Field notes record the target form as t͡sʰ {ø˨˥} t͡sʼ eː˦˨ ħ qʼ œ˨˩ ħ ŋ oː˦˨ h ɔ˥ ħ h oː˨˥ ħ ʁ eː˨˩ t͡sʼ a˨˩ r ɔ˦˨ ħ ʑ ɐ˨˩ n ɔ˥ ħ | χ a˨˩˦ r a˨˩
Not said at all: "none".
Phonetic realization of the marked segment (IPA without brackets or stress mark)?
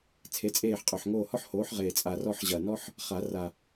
e˨˥